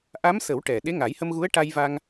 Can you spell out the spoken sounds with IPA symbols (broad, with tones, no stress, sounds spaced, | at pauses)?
ʔ a˧˥ m s ə˨˩˦ w ʈ ɛ˨˩ ɗ e˧˥ ŋ a˨˩˦ j h ə˧ m ɣ u˧˥ ə̯ ʈ a˧ j v a˧ ŋ